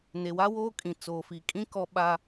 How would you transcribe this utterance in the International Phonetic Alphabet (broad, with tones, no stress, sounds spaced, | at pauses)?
n e˨ w a˦ w oː˦ kʼ ĩ˨ t͡s oː˨ f i˨ kʼ ĩ˦ k ɔ˦ ɓ a˦